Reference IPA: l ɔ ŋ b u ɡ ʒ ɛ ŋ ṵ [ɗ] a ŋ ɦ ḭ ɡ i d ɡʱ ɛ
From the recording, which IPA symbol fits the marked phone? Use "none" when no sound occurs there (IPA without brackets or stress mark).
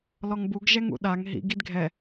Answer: ɗ